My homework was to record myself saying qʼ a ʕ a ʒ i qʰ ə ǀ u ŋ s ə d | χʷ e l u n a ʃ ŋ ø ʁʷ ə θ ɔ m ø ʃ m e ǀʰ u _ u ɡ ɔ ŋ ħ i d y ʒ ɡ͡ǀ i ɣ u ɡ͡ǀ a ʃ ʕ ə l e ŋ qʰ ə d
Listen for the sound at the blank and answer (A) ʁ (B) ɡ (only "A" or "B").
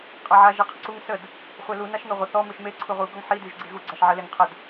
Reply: A